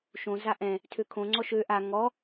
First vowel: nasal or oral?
nasal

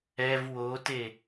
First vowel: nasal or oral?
oral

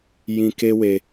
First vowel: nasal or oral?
nasal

